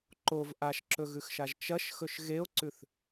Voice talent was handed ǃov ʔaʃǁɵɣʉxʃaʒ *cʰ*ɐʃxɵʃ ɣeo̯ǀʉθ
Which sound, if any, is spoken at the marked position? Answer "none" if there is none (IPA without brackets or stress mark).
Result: t͡ʃ